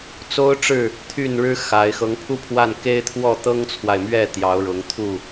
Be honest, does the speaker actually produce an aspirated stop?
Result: yes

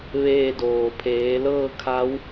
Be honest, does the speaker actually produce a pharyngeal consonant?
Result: no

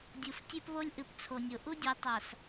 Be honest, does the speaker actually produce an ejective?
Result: no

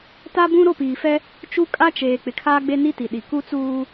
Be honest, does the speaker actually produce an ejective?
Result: yes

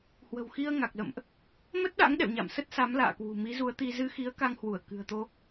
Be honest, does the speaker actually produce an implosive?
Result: yes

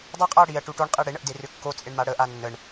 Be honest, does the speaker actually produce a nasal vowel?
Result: no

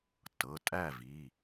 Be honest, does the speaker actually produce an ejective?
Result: yes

